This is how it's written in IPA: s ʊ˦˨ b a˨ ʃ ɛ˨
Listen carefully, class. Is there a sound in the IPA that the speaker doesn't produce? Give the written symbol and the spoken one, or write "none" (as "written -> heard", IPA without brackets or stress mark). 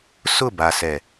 ʃ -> s